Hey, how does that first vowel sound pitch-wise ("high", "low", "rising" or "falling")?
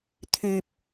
low